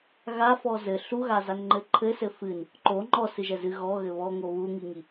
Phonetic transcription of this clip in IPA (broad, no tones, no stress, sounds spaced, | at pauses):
ɣ a f ɔ z ɘ ɬ u ɣ a z a n ŋ͡ǃ ɘ ǃʰ ɘ s ɘ f ɨ n | ǃ o ŋ͡ǃ ɔ s ɨ ʒ ɛ z ɨ ɣ ɔ ɣ ɘ β ɔ ŋ o β u ŋ i ŋ i